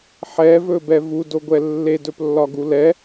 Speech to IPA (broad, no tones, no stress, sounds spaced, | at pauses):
ħ ɛ v ɵ b ɛ v u d o ɡʷ ɛ lː e d ɵ p lː ɒ ɡ u l ɛ